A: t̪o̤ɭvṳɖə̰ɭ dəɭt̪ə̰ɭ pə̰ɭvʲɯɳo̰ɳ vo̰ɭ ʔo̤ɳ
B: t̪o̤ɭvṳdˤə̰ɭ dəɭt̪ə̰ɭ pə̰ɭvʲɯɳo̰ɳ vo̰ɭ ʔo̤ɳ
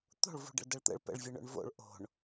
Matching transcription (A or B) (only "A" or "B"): A